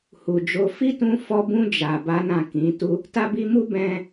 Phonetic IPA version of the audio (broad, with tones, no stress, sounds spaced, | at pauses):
h u˨ d͡ʒ o˨˦ f i˦ t ũ˧ f ɔ˧ b ũ˧ d͡ʒ a˨ b a˨˦ n ã˦˨ k ĩ˨˦ t u˦ | t a˦ b i˦ m u˦ b ɛ̃˧